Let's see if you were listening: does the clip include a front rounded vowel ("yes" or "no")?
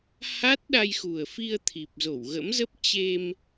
no